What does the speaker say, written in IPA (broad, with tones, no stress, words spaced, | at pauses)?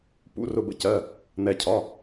pṵ˩˧˩rʊ˩bə̰˩ cɜ˩˧˩ | n̪ɛ˩cʰɒ˩˧˩